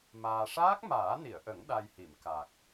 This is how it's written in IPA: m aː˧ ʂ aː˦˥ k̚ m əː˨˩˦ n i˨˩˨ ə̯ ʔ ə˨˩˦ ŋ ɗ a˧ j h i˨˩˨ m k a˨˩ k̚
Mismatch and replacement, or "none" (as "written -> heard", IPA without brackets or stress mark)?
əː˨˩˦ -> aː˨˩˦